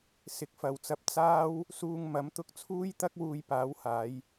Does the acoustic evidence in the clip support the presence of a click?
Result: no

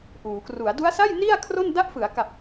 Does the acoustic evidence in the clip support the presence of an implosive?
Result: no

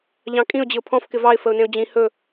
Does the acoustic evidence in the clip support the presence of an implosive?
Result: no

